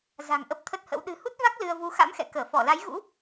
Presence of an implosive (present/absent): present